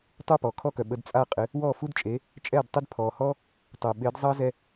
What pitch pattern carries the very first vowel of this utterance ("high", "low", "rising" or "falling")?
falling